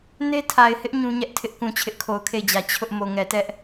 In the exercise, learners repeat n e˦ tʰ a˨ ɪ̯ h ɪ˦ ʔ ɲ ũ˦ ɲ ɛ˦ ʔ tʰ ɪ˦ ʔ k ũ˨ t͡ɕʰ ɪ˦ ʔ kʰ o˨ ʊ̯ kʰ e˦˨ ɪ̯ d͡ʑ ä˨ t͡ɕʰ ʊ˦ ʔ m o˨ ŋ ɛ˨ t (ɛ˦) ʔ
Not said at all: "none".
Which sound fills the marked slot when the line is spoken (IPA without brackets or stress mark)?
ɛ˦